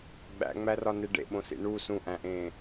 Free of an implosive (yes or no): no